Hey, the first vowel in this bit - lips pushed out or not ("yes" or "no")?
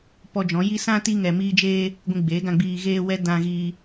yes